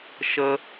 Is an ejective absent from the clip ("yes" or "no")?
yes